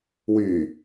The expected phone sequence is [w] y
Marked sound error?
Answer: no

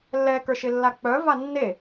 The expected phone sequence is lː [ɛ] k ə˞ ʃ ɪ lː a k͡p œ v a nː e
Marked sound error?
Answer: no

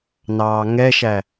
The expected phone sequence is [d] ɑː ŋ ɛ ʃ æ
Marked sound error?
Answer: yes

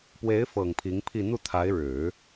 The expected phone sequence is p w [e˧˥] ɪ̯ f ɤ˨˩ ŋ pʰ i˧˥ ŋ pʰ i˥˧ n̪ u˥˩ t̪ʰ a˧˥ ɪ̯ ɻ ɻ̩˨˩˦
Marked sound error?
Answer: no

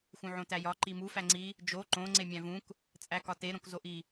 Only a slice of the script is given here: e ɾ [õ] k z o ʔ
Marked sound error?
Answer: no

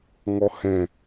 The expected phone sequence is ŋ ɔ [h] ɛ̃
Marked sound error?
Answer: no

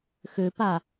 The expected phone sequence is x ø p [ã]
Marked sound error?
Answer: yes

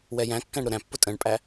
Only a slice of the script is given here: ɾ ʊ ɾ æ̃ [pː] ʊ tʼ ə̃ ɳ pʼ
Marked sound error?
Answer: no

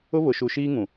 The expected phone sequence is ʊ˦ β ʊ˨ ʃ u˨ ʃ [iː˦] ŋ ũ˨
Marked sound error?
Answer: no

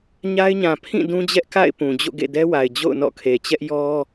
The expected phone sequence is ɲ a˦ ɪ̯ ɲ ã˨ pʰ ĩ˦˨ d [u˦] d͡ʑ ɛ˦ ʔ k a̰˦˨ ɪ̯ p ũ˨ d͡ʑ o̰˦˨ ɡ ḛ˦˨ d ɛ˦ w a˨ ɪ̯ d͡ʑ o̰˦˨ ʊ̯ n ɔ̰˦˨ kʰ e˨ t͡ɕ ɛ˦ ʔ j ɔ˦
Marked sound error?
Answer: yes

